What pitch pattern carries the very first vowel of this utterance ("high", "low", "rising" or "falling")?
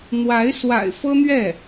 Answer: rising